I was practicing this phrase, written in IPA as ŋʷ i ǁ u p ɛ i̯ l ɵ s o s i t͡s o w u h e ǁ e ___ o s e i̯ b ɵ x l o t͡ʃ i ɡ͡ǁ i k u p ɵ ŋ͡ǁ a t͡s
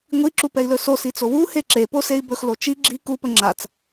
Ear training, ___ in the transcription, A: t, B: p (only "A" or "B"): B